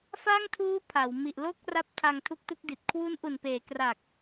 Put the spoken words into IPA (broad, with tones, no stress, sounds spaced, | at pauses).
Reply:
f aː˥˩ ŋ tʰ uː˦˥ pʰ a˩˦ w m i˨˩ ʔ l o˥˩ k̚ r a˦˥ p̚ tʰ a˧ ŋ tʰ u˦˥ k̚ t u˦˥ k̚ d i˨˩ t̚ kʰ w u˦˥ n ʔ u˨˩ n p eː˩˦ k r a˨˩ k̚